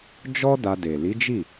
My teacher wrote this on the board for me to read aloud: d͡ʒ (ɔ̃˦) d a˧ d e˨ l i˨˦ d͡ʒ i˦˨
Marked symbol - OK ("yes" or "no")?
no